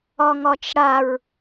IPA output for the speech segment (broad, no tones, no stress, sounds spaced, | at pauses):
ɒ ŋ ɒ t͡ʃ ɽ a ɹ